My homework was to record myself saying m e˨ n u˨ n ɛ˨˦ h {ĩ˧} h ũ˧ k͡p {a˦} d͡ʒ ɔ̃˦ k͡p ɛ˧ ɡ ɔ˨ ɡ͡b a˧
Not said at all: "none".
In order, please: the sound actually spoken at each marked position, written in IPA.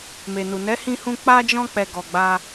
ĩ˧, a˦

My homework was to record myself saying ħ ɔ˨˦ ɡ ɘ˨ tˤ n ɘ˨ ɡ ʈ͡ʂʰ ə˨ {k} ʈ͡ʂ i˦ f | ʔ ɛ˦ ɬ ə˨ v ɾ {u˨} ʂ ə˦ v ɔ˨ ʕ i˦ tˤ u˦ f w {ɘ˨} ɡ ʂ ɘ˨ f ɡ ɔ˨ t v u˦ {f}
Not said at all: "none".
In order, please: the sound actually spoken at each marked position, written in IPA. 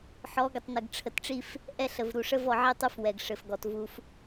t, u˨, ɛ˨, f

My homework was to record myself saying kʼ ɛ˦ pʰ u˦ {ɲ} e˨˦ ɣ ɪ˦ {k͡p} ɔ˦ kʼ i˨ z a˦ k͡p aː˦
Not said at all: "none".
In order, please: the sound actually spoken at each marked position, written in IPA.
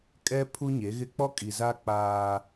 ɲ, k͡p

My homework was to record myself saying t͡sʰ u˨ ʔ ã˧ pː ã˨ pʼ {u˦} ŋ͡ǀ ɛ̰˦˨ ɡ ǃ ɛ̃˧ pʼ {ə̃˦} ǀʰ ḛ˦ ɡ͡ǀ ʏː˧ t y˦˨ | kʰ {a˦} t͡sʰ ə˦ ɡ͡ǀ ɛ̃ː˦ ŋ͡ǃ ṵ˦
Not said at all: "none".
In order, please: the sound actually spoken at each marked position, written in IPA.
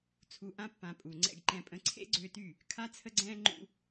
u˨, ə̃˧, a˦

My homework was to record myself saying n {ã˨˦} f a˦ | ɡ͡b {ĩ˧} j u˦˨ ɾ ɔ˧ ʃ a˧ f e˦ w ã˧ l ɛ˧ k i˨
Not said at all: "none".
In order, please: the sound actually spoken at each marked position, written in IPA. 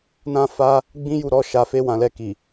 ã˦, ĩ˦

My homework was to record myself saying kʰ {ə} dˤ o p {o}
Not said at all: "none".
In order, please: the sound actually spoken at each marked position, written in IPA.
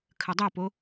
ə, o

